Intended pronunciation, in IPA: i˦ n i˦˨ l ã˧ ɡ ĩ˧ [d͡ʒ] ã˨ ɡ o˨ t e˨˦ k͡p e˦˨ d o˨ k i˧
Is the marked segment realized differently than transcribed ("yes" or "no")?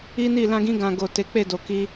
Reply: yes